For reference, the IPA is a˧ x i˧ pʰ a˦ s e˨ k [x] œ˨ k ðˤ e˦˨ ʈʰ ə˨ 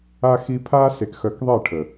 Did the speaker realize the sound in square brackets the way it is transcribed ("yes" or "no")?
yes